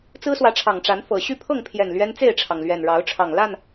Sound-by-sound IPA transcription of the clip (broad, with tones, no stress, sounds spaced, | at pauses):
t͡s ɹ̩˦ s w ä˨˦ ʈ͡ʂʰ ɑ˨˩ ŋ ʈ͡ʂ a˨˦ n f ɤ˨˩ ɕ y˥˨ pʰ ɤ˥˨ ŋ pʰ j ɛ˨˩ n l ɥ ɛ˦ n t͡s e˥˨ ɪ̯ ʈ͡ʂʰ ɑ˩ ŋ l ɥ ɛ˨˩ n ɻ ɑ˨˦ ʊ̯ ʈ͡ʂʰ ɑ˨˩ ŋ l a˥˨ n